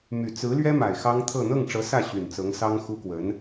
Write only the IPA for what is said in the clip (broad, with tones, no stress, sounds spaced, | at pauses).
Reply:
m y˨˩ t͡s ɹ̩˧˥ l ɥ ɛ˥ m a˨˩ ɪ̯ x ɑ˥ ŋ t̪ʰ ɤ˥˧ n̪ ɤ˥˩ ŋ ʈ͡ʂ ɤ˧˥ s ä˥˩ ɕ y˨˩ n t͡s ɤ˧˥ ŋ s ɑ˥ ŋ x u˥ k w ə˧˥ n